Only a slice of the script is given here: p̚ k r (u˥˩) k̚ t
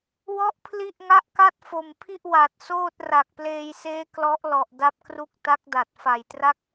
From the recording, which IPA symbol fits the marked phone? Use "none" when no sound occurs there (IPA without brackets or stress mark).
u˥˩